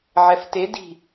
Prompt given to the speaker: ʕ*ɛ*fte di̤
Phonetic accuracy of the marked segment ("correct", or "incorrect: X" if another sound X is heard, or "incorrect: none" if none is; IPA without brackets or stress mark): correct